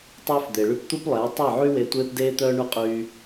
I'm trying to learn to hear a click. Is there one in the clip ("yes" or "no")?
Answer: no